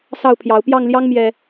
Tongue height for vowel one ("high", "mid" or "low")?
low